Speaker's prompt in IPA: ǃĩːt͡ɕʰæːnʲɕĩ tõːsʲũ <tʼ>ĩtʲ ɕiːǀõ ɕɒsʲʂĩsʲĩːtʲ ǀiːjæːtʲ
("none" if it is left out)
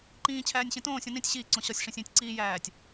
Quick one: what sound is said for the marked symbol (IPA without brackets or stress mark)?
n